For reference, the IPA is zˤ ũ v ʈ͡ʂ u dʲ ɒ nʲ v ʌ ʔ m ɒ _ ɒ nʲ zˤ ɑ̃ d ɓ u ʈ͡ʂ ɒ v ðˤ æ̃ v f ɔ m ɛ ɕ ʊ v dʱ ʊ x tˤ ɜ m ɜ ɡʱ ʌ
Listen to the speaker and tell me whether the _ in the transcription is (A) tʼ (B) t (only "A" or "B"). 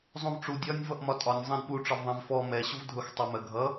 A